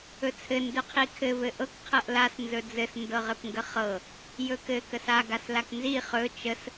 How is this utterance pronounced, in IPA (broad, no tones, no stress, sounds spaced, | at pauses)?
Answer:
ɵ t͡sʰ ɘ n d ɵ qʰ i kʰ ɘ v ɘ ʔ ɤ k qʰ ɤ ʔ l a s n z ɵ d͡z ɘ s n d ɤ ʁ ɘ p ŋ ɡ ə χ ɤ | j ɵ k ɘ k ə s a ɡ a s l a k n z i χ ɵ t͡ʃ ə s